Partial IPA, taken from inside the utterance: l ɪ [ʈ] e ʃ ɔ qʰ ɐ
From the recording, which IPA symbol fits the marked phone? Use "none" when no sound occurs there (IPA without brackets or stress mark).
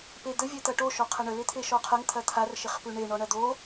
t̪ʰ